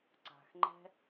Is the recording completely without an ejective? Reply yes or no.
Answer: yes